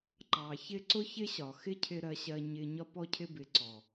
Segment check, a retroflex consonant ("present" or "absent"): absent